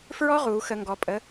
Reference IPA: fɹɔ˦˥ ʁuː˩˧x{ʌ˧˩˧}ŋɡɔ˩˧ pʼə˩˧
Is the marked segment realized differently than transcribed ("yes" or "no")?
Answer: yes